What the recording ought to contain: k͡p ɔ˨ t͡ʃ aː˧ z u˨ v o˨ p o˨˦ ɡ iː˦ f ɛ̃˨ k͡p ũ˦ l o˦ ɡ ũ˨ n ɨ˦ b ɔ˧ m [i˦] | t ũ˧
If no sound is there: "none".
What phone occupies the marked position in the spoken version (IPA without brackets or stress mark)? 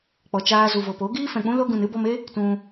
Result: e˦